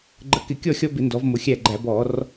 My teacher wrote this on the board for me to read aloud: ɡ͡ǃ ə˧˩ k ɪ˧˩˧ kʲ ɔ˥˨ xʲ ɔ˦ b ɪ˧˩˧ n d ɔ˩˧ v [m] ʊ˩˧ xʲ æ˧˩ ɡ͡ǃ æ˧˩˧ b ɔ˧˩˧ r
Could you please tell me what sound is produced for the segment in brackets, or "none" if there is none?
m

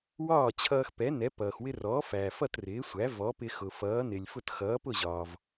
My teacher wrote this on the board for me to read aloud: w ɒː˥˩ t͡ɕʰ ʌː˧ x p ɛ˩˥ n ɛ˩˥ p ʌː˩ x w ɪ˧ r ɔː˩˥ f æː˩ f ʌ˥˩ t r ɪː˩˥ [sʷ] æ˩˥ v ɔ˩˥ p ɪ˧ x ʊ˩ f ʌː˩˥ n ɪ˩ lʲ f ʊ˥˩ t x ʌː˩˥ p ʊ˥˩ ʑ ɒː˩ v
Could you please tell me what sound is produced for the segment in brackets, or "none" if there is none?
sʷ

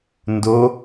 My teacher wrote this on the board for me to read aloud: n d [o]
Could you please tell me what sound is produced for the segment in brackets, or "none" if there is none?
o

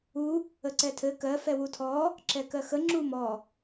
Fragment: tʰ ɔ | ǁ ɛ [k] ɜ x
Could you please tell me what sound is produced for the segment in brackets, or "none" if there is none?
k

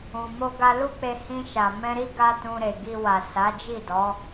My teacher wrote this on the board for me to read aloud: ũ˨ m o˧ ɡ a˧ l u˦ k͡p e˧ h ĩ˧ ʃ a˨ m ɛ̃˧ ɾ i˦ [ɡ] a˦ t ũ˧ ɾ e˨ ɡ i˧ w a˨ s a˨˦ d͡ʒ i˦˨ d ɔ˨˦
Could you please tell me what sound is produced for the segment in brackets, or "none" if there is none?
ɡ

